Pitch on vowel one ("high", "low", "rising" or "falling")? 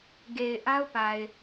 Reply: low